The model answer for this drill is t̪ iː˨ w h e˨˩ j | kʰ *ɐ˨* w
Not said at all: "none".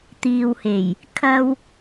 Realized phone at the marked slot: ɐ˥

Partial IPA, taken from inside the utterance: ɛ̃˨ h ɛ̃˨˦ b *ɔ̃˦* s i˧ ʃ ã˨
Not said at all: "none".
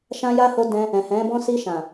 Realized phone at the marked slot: ɔ̃˦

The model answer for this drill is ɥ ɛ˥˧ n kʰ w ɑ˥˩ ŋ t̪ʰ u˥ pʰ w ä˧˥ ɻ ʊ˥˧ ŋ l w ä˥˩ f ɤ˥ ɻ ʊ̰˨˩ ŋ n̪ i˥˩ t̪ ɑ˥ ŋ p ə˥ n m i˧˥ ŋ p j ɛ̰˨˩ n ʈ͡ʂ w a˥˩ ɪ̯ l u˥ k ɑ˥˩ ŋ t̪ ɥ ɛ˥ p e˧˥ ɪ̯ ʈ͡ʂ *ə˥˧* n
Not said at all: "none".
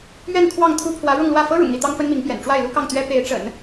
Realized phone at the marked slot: ə̰˨˩˦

